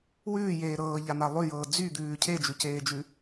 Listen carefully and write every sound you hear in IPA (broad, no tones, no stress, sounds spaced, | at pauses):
w ʉː j eː ɾ ɤː ʎ a n̪ a lˠ ʉ j ɤː d͡z y d̪ ʉː cʰ e d͡ʒ ʉ c eː d͡ʒ ʉ